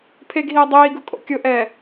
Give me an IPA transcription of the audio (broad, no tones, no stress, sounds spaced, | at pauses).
pʰ e ɡ ɦ iː dˤ iː ɡ ʊ kʼ o̰ kʲ ʊ ʔ ɛː